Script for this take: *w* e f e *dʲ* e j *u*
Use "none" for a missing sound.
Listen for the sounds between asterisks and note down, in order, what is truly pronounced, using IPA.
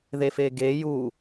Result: ð, ɡ, u

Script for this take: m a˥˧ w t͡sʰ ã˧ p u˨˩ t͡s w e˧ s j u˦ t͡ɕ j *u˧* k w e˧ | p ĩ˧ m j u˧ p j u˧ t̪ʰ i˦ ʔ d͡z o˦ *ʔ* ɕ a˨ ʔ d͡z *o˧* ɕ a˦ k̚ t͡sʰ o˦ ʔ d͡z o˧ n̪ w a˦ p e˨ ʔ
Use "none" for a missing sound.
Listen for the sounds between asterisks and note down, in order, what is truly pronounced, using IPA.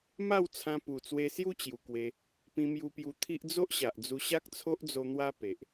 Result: u˨˩, ʔ, u˧

